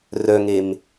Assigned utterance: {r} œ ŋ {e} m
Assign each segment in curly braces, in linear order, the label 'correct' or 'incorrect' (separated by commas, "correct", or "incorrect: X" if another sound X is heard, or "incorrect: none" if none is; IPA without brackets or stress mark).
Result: correct, correct